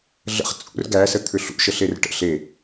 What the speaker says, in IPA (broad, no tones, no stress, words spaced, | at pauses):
ɮə̰χ t͡sʼṵr ɡæsə t̪ʰʏɬṵ ʃəɬerʈə̰ ɬe